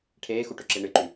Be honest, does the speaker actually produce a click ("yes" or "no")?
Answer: yes